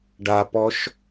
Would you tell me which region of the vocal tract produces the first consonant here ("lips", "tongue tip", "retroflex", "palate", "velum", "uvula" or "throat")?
retroflex